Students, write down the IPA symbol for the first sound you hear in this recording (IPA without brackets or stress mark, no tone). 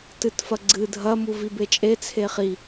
t